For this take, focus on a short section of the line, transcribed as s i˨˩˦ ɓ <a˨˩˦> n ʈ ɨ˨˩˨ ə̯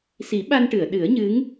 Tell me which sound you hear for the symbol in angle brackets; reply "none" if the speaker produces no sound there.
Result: a˧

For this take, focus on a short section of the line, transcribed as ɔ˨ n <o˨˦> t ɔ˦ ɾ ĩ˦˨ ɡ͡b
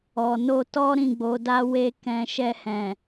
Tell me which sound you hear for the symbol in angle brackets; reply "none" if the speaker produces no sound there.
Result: o˧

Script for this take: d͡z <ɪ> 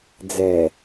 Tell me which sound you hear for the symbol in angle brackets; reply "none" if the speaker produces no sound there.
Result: ɛ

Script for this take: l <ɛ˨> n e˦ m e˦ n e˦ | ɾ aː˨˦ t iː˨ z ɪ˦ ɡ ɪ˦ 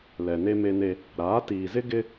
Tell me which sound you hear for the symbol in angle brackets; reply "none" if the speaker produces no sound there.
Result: ɛ˨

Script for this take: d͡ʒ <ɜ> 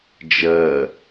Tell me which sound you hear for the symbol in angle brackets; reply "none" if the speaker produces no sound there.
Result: ɜ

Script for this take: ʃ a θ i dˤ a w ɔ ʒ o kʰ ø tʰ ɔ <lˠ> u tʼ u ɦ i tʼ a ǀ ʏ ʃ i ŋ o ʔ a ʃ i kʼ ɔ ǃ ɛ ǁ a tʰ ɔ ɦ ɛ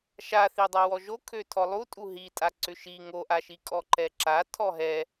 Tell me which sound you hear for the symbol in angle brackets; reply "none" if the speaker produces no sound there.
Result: lˠ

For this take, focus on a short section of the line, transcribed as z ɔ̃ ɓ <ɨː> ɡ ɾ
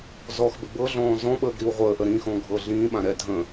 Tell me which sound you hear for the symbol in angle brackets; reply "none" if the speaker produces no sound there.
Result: əː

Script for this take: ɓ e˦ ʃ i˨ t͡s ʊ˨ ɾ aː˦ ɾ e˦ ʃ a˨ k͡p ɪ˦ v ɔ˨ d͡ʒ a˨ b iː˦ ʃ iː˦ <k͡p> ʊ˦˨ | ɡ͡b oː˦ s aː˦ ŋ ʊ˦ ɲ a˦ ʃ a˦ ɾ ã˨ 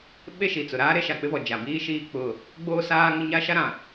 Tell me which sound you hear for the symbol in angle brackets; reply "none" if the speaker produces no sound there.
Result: k͡p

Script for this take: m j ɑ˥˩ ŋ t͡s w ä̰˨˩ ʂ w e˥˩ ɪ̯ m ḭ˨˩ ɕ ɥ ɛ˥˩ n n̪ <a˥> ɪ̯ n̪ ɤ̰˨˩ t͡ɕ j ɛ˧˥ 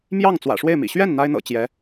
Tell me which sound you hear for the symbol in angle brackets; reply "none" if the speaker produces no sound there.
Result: a˥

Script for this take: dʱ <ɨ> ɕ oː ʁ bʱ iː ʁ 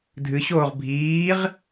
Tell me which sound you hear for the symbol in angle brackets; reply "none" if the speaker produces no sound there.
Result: ɨ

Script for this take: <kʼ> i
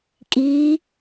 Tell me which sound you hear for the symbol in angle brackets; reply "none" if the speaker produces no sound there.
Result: kʼ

